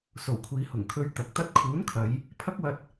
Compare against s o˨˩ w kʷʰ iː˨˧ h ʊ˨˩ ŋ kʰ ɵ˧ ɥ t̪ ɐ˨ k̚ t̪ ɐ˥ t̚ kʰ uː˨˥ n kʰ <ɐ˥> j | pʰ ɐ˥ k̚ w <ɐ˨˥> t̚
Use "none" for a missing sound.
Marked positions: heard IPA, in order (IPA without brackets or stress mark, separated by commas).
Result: ɐ˨˧, ɐ˧